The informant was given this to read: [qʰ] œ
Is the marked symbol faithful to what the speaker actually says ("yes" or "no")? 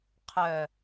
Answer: yes